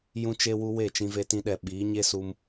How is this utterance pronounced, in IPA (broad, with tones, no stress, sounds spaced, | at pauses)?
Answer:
j ũ˧ t͡ʃ e˧ w u˧ w e˦˨ t͡ʃ ĩ˧ v e˧ t ĩ˧ ɗ ɛ˨ ɓ iː˨˦ ɲ e˦ s u˧ m